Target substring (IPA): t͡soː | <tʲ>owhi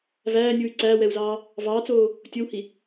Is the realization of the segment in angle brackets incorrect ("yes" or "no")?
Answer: no